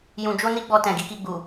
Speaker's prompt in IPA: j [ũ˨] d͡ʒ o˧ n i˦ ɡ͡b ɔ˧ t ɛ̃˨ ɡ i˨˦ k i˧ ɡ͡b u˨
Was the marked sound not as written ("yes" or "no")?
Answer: no